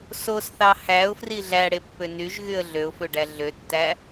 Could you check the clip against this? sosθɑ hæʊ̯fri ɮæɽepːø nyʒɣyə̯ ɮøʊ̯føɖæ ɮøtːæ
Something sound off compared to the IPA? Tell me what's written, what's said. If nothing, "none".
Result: none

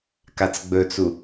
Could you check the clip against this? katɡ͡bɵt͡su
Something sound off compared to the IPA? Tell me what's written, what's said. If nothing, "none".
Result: t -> t͡s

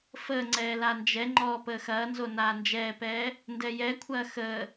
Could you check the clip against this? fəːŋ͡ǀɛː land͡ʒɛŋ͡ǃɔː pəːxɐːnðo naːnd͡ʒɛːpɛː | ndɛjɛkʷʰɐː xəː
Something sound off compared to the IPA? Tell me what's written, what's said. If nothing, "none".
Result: ð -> z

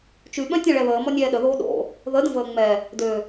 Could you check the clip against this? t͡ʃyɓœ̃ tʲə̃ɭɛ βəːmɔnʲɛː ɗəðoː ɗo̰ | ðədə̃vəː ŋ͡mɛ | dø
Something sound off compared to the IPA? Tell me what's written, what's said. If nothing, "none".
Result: none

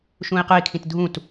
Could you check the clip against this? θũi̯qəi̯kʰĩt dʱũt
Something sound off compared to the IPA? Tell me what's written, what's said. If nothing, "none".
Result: θ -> ʃ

